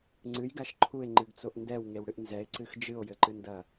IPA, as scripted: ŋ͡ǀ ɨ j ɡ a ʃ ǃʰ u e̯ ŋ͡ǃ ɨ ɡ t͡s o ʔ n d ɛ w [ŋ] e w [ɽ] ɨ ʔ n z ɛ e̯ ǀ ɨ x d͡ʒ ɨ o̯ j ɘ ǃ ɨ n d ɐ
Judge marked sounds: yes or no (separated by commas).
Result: yes, yes